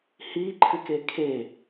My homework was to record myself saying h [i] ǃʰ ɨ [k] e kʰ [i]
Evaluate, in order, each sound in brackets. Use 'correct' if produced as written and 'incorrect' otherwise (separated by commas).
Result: correct, correct, incorrect